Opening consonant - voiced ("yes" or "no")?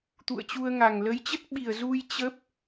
no